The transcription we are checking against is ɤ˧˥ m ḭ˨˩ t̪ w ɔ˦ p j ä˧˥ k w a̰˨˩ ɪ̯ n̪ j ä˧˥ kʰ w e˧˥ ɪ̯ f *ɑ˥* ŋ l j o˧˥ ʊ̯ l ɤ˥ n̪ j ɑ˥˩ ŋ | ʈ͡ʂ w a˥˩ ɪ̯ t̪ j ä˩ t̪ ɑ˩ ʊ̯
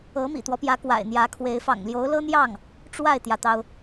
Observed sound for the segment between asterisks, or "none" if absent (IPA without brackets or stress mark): ɑ̰˨˩